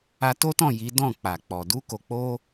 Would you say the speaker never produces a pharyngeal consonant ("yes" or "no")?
yes